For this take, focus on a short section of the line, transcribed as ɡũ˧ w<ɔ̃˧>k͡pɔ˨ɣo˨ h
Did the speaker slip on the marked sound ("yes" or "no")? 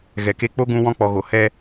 no